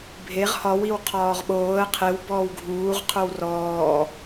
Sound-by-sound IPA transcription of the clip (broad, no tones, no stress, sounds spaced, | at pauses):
bʱ e ʁ h ɒ w i w qʰ ɒː ʁ ɓ oː ə̯ qʰ e w b ɔː w ɡʱ uː ʁ qʰ o w r ɔː